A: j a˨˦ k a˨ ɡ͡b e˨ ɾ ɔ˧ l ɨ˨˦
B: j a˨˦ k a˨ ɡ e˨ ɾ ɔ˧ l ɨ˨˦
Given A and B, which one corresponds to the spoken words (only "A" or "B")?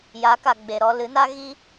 A